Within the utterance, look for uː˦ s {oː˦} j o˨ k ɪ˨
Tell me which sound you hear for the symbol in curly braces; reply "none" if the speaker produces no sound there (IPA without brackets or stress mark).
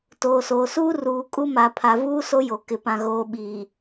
o˦